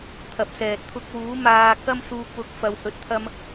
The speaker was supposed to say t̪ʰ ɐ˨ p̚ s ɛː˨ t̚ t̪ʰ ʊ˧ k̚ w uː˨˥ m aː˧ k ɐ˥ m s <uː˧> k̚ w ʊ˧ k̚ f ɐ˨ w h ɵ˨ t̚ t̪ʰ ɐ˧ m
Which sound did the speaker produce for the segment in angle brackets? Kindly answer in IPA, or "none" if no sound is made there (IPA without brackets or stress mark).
uː˧